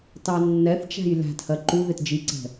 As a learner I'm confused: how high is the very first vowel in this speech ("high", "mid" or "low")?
low